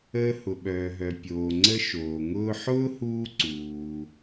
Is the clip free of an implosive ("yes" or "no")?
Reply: no